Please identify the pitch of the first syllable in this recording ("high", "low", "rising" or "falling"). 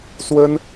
high